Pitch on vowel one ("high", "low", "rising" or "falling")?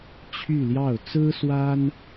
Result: falling